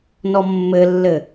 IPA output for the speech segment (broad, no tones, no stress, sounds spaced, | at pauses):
n ɔ mː ɘ lː ɘ